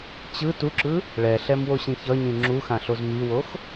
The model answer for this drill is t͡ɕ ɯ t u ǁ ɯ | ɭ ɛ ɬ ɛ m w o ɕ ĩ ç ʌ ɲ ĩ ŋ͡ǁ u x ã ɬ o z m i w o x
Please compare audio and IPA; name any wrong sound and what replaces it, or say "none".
none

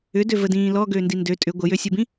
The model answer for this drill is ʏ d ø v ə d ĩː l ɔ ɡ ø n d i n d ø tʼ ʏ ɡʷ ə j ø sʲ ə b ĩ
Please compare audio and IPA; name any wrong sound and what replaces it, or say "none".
none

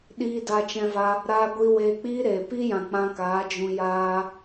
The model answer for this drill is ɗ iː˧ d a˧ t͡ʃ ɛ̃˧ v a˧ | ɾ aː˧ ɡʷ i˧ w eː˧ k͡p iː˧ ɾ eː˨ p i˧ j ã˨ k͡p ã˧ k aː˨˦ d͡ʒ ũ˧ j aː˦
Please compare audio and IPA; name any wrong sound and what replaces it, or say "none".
none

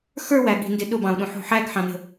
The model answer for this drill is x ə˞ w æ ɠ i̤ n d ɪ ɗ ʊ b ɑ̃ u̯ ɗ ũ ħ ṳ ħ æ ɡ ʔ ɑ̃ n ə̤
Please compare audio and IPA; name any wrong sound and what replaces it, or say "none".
ʔ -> ħ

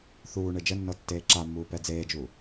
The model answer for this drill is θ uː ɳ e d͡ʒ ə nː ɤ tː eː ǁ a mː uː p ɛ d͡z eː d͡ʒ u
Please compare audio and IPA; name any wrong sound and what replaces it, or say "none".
none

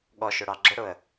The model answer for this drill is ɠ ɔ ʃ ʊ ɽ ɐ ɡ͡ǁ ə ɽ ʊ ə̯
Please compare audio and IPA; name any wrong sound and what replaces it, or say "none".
ɐ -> ɑ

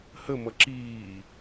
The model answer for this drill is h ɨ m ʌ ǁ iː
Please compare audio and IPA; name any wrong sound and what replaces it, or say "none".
ɨ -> ə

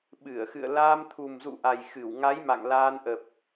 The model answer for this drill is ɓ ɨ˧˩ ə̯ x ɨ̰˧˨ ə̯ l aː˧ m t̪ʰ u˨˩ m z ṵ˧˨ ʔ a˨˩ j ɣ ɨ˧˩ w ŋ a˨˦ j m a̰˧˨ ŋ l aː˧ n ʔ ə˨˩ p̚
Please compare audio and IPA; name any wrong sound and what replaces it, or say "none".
ɣ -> x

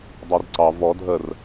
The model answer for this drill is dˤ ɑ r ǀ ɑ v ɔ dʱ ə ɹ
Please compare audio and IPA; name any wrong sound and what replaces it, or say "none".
ɹ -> r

